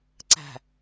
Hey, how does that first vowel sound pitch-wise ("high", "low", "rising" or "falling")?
low